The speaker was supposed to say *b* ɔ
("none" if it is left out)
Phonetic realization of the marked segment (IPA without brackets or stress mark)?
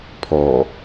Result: pʰ